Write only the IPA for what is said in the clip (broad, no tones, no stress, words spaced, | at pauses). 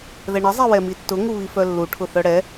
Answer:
ðɛɳɘ zˤiwɛmitːʊ ŋuβifœlːu ʈʰʊθœɽɛ